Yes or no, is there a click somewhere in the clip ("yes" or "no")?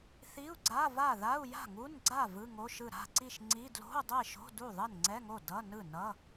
yes